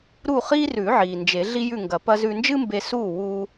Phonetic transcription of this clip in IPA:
ɾ u˥˨ χ iː˥ r ʉ˨˩˦ ʕ iː˩ n d͡ʒ e˨˩˦ ɮ i˥ j ʉ˥˨ ŋ ɡ ɐ˨˩˦ p ɐ˥ z ʉ˧ n d͡ʒ ɨ˥ m b e˧ s uː˥˨ w uː˥

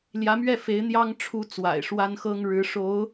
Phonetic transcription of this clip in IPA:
l j ä˧˥ m ɥ ɛ˥˩ f e˧˥ ɪ̯ n̪ j ɑ˥ ŋ ʈ͡ʂʰ u˥ t͡s w a̰˨˩ ɪ̯ ʂ w a˥ n x ɤ˥ ŋ ɻ ɻ̩˧˥ ʂ o˧˥ ʊ̯

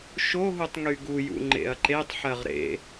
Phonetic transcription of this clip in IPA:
ʃ o ɦ u tˤ ŋ y ɡ u j ṵ ŋ͡ǃ ḛ ɐ̯ ǃ e tˤ ħ ɜ ʁ ɾ ḛ

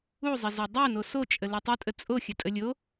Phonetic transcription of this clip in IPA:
u zˤ ɪ z ɪ dˤ u n o s o t͡ʃʼ ə l u tˤ o tʼ ə t͡sʼ o xʲ ə tʼ ə lʲ o

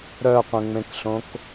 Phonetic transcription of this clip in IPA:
ɾ œ qʷ ẽ ŋ͡m ẽ k ɬ õ k

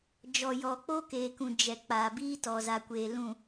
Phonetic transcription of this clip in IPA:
d͡ʒ ɔ˨ j ɔ˨ k͡p o˦ k eː˨ k ũ˨ d͡ʒ ɛ˨ k͡p aː˨ b iː˦ t ɔ˨ z a˨ kʷ eː˨ l ũ˨

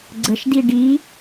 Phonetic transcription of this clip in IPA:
ɡ͡ǀ ə ʃ d i ɖ i

